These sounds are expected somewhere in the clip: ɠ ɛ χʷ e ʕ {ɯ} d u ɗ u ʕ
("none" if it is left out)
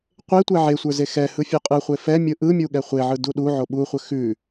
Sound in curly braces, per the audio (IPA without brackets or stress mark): ɯ